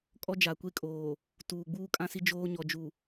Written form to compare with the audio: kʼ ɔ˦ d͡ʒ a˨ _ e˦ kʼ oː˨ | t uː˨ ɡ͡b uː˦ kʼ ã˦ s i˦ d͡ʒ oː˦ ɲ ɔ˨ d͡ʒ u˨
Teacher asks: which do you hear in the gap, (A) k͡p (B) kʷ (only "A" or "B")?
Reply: B